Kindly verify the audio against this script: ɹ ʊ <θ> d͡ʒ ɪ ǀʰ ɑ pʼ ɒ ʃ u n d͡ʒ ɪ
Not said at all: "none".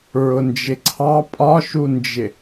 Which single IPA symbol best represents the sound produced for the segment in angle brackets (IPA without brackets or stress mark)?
n